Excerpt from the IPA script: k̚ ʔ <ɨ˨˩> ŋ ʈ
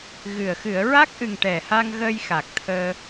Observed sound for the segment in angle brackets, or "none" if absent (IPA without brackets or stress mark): ɨ˨˩